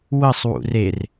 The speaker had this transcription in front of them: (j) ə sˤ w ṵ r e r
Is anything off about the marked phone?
yes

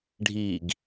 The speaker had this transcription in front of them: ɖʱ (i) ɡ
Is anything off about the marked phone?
no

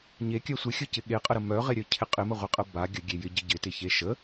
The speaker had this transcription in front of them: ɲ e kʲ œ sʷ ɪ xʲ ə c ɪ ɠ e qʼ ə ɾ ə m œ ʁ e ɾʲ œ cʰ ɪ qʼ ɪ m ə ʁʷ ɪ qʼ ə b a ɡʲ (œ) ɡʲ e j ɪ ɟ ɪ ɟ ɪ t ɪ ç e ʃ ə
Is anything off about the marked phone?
yes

